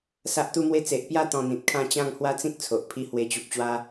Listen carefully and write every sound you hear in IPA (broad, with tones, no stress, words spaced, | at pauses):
sa˦ʔt̪u˦mwe˦ t͡se˨ʔpja˧ t̪ɔ̃˧n̪ĩ˨t̚kʰã˥˧ t͡ɕã˥˧ŋhwa˦t͡sĩ˦k̚ t͡sʰo˨ʔpʰi˦ hwe˧t͡ɕu˨p̚t͡ɕwa˦